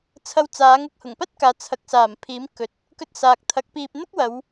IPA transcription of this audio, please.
t͡sʰɐ˧wt͡saː˨˥ŋ ʊ˧k̚hʊ˨˩ŋpɐ˥t̚kaː˨ t͡sʰɐ˨˥k̚saː˨˩mpʰiː˨˥m kɵ˨˥t̚ | kɵ˧t̚saː˨k̚t̪ʰɐ˨˥k̚ piː˧p̚ n̪ʊ˥k̚wɐ˨˧w

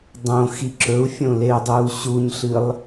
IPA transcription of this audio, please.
dˤõ xiǁɵu̯fʲõ leu̯dˤuːɕuɲɬɨlˠ

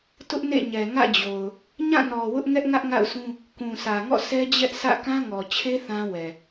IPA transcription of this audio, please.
tʊ˦ʔnḛ˦˨ɲɛ˨ ŋä̰˦˨d͡ʑo˨ʊ̯ | ɲã˦˨nɔ˨ wʊ˦ʔ ŋɛ˦ʔŋä˦ʔŋa̰˦˨ʊ̯sũ˦ | kũ˨sä˨ŋɔ̰˦˨ sʰɛ˦d͡ʑɛ˦ʔ sä̰˦˨kã˦ŋɔ˨t͡ɕʰe˦ θã˦wɛ˨

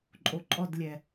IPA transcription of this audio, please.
ǃʼoǃʼɔdlʲɛ

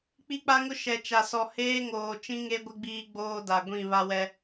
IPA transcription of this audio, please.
k͡pi˦k͡pa˦ŋʊ˦ ʃɛ˨t͡ʃa˨sɔ˨ heː˦ŋoː˨ t͡ʃĩ˦ŋe˦ɡʷɪ˦ɡ͡biː˦ ɡ͡boː˦da˨ɡʷĩ˦˨ βa˦wɛ˦

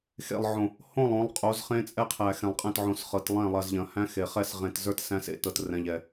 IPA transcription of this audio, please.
xḛ˨lˠʕõ˨ | hõ˦˨lˠ õ˨˦lˠ qʼo˨˦zχẽ˦t͡sʼɛ˦qʰæ˨ xɛ̃˨lˠqʼɛ̃˦˨t ʕõ˨s χɤ˨t lˠɛ̃˦˨lˠɐ˨z ʎɐ̃˨hæ̃˦ xe˨ χɛ˦˨sʁẽ˨tzə˞˦t sæ̃˦sḛ˦ tɤ˨trɛ̃˨ʎɛ˨

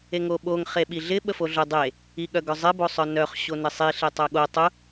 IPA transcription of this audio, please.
eŋoɓoŋ χeɓiɮɪ ɓəfoɮʊ dˤe | iɠœɡœzˤɪ bosˤœnœχ ɕonɪsˤi ɬetˤœɠo tˤʊ

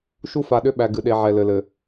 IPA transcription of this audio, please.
ʃu˦fa˨ɗʏ˦ ɓæ˨ɡɨ˨ɗe˨ ʕɛ˨lɘ˨lɘ˨

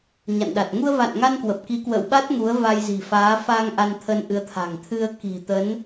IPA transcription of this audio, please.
ɲa̰˧˨nɗa˨˩t̚ ŋu˧ə̯va̰˧˨nŋa˧n kwə˨˩p̚ki˨˦kwə̰ː˧˨wɓa˦˥t̚ ŋu˨˦ə̯va˧jzi̤˨˩faː˨˦ fa˧ŋ ʔa˧nt̪ʰə˧nʔɨ˨˦ə̯t̪ʰa̤˨˩ŋ t̪ʰɨ˧ə̯ ki̤˨˩t̪ə˨˦n

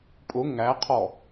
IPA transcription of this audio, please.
pʼʊ ŋæqʰɔ

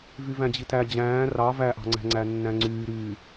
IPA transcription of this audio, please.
vyvæ̃d͡ʑitæ d͡ʑæ̃ː rɑ væʔɑ̤ŋ͡ǀæ̤ŋ͡ǀæ nːæ̃ŋ͡ǀyːɾyː

